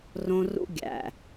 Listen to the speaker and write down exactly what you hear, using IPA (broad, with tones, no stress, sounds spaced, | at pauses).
r õ˦ r ṵ˦ ɡʲ æ̰˨